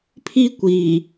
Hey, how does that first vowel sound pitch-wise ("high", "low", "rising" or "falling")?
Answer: high